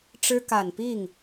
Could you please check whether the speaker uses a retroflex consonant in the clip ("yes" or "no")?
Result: yes